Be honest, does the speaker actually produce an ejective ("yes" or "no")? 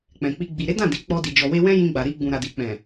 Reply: no